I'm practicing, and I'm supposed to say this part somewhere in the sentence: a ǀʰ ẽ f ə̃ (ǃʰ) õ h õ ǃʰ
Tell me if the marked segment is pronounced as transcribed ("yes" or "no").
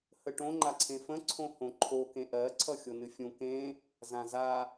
no